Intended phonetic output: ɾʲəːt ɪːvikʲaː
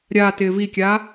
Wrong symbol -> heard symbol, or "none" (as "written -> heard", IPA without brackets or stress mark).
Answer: əː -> aː